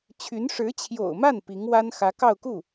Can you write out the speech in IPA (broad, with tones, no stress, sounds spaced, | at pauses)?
t͡ɕʰ y˧˥ n ʂ ɻ̩˧˥ t͡ɕʰ j o̰˨˩ ʊ̯ m a˥˩ n p i˧˥ ŋ w a˥ n x ä˧˥ k ɑ˥˧ ʊ̯ k u˥˩